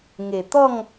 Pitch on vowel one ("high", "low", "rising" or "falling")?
low